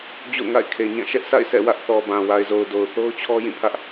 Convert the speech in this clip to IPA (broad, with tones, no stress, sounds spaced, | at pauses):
d͡ʑ o̰˦˨ ʊ̯ ŋ a̰˦˨ ɪ̯ kʰ e˨ ɲ ã˦˨ ʃ ɛ˦ ʔ s a̰˦˨ ɪ̯ s ɛ̰˦˨ w ä˦ ʔ θ ɔ˨ b ã˨ w a˨ ɪ̯ z o˨ ʊ̯ d o˨ ʊ̯ θ o˦ ʊ̯ t͡ɕʰ ɔ˦ j ĩ˦˨ pʰ ä˦ ʔ